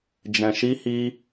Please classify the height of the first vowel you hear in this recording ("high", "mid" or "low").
mid